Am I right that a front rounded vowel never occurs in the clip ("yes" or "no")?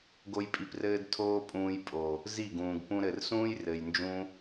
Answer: yes